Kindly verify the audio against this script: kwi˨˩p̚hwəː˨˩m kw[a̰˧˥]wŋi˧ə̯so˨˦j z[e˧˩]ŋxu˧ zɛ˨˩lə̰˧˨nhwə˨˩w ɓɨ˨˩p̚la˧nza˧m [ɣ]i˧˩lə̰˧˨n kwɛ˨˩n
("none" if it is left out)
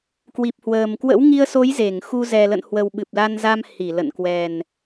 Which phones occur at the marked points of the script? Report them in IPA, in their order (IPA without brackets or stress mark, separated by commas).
ə̰˧˥, e˧˩, h